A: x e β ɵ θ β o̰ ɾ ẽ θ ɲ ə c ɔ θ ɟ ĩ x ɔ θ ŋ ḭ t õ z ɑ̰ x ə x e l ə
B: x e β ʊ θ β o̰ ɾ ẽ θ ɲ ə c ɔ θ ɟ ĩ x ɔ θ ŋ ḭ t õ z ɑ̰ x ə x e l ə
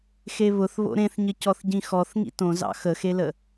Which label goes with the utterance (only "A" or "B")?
B